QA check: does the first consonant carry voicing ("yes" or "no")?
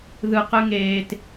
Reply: yes